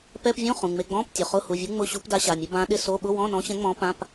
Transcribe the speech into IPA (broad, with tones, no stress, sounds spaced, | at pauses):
p ɛ˧˥˧ p vʲ õ˧˥˧ χ ũ˩˧˩ ŋ͡m e˧˥˧ ɡ͡b ɔ̃˧˥˧ p tʲ ʊ˩˧˩ χ ʊ˧˥˧ h u˩˧˩ vʲ u˧˥ ŋ͡m ʊ˧˥˧ ɕ u˧˥ p d a˧˥ ɕ a˩˧˩ mʲ ʊ˧˥ b ã˧˥ ɗ ɪ˧˥˧ s o˧˥˧ ɓ ʊ˧˥˧ w ɔ̃˧˥˧ n ɔ̃˧˥ ɕ ɛ̃˧˥ ŋ͡m ɔ̃˧˥ p ã˧˥˧ p